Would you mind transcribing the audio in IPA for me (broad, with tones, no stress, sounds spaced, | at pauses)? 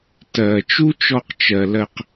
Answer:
t ɜ˨ t͡ʃ u˦ t͡ʃ ɔ˧ q t͡ʃ ɜ˨ l ɜ˧ q